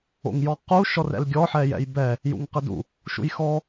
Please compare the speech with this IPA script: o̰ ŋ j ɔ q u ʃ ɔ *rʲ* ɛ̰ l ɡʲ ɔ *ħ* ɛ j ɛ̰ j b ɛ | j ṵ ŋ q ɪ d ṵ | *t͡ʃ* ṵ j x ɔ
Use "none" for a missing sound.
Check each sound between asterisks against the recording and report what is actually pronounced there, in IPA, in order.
r, ħ, ʃ

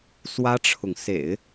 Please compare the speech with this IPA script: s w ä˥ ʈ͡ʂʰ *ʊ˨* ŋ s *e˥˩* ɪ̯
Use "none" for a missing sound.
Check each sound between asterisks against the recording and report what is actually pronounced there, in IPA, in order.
ʊ˨, ḛ˨˩˦

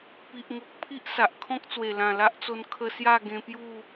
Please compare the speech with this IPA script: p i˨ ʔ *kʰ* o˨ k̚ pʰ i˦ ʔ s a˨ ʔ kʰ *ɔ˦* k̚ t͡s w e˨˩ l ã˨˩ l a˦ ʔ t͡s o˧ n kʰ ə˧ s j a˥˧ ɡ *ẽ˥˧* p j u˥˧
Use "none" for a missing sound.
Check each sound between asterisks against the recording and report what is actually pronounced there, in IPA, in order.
ŋ, ɔ̃˦, ẽ˧

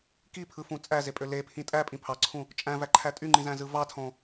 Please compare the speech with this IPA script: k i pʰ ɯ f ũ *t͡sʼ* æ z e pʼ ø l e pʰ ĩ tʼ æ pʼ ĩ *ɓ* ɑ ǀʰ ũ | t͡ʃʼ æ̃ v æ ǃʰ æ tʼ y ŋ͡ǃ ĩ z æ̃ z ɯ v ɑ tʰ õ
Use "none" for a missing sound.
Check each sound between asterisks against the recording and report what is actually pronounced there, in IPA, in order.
t͡sʼ, pʰ

